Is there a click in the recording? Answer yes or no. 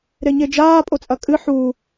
no